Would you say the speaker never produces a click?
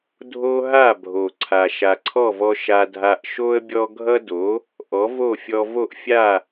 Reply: no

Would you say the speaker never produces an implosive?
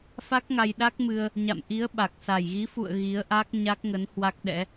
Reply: no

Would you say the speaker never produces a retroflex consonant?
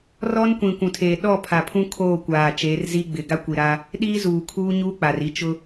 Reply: yes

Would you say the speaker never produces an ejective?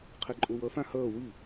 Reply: no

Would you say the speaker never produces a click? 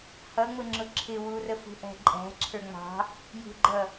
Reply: no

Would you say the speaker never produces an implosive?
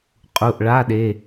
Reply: no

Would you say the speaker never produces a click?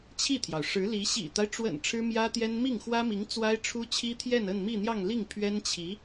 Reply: yes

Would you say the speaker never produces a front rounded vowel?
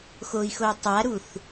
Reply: no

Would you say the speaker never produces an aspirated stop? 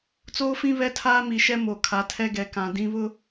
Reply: no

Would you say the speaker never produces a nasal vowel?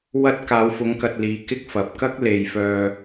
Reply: yes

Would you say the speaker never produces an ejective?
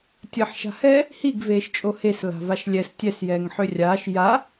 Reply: no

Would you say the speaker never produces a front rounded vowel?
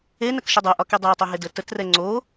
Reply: yes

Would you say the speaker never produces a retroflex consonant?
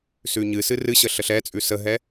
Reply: yes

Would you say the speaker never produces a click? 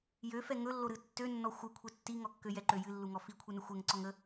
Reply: no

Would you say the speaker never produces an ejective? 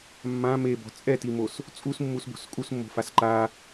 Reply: no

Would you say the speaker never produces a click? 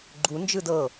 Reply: no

